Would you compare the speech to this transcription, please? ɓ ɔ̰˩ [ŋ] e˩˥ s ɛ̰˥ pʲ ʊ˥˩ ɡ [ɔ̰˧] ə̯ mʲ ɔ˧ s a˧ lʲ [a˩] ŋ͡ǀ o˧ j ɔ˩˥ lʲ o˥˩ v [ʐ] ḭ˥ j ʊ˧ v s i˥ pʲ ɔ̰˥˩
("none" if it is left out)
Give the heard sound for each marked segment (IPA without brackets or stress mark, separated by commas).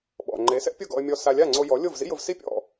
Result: ŋ͡ǃ, ɔ̰˧, a˥˩, z